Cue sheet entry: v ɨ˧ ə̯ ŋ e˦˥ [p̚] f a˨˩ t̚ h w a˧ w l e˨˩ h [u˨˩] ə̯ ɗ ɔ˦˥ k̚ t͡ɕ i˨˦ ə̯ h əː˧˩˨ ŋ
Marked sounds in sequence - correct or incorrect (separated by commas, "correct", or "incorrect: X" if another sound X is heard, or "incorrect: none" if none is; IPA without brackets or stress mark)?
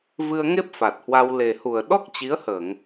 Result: correct, correct